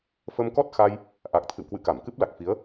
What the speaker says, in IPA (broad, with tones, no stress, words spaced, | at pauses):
fə˧mkɔ˦˥t̚xa˧j | ʔa˨˩k̚t̪ʰɨ̰˧˨wkwɨ̰˧˨ ka˧˩mkɨ˦˥p̚la˨˩k̚fi˨˦ə̯